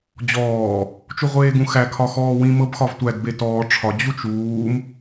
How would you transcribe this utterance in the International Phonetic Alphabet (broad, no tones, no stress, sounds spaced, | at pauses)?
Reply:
d͡ʑ ɔː | t͡ʃ u ʁʷ eː ɡ ũ x æ kʰ ɒ x ɔː w ĩ m ɤ b x ɒ v tʷ æ d b e t ɔː ʈ͡ʂʰ ɒ d͡ʑ u t͡ʃ uː m